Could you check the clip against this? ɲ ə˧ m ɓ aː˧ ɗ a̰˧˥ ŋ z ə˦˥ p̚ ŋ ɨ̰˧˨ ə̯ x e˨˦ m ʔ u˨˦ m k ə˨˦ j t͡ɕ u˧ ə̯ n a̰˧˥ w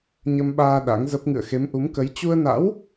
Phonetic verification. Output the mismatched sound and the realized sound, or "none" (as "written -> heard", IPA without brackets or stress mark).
none